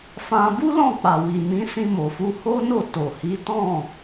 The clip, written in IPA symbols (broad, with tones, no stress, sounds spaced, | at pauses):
f ã˧ b u˦ l ɔ̃˦˨ k͡p a˨ w i˨ m ĩ˨˦ s ĩ˧ m o˨ f u˧ h o˦ n o˦˨ t o˨ h i˨˦ t ɔ̃˦˨